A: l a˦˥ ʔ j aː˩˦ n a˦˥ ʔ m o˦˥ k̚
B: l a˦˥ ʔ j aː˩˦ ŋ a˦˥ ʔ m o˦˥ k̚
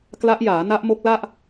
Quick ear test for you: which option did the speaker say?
A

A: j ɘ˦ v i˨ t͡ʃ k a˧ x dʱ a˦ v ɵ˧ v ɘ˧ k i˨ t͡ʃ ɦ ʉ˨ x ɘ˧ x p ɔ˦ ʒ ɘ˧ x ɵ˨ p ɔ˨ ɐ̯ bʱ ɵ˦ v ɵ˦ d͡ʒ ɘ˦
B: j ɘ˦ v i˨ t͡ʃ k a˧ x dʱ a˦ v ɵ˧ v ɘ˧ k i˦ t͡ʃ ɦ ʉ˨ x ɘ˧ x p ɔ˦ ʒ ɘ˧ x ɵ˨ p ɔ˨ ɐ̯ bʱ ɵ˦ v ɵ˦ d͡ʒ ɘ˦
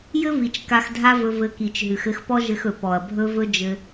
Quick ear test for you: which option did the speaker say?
A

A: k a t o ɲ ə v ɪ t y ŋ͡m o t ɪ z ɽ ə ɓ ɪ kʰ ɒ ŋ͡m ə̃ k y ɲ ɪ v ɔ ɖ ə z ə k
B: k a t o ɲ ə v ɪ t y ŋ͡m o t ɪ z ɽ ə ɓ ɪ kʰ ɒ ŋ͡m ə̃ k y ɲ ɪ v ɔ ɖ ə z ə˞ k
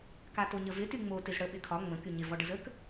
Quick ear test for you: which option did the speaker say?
A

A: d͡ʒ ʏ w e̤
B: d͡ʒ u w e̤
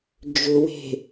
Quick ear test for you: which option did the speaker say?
A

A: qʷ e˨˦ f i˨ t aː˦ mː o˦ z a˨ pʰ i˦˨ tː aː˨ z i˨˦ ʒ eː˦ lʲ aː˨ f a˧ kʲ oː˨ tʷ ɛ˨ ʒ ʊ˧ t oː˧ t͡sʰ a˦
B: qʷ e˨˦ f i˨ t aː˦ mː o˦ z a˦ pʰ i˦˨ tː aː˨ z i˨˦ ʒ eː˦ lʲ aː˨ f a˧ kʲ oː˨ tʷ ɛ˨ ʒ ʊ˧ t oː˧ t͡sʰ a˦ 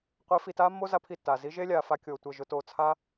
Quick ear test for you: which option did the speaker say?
B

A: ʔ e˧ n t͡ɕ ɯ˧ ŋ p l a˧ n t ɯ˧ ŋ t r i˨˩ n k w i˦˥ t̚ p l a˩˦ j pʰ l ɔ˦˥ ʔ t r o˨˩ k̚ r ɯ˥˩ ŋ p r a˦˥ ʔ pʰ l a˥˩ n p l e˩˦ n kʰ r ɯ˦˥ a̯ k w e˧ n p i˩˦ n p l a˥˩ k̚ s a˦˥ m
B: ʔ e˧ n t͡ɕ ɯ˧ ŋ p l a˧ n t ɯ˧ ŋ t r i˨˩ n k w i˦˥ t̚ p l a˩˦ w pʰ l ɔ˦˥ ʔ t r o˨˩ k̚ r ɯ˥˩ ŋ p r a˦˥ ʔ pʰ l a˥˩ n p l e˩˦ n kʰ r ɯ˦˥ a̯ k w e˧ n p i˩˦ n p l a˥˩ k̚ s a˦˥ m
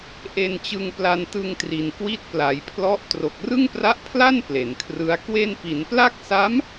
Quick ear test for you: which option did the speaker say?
A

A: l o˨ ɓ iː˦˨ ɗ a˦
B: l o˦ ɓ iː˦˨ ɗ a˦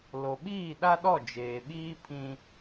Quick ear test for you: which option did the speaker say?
A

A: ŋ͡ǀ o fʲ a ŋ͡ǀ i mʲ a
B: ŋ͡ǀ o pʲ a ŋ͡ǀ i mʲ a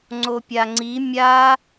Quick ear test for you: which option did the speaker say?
B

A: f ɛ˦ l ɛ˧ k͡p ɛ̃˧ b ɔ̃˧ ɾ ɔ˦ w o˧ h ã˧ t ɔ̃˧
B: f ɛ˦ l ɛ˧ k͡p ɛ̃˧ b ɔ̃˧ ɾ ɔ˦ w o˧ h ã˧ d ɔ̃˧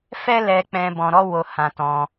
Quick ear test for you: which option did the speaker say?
A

